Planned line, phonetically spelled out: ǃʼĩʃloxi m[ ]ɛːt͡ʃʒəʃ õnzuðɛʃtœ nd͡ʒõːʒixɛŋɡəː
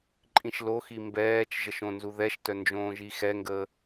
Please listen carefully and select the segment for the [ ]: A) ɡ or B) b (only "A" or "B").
B